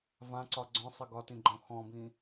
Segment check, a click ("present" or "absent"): present